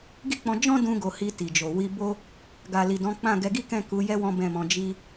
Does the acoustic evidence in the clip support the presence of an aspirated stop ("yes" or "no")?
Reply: no